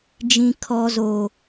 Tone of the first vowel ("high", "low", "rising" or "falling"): low